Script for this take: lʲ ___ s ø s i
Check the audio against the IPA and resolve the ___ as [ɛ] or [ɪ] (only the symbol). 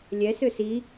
ɛ